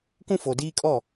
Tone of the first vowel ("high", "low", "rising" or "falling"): high